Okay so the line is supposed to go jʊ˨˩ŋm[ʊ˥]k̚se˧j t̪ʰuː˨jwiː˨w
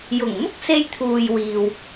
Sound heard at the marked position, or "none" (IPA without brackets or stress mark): ʊ˥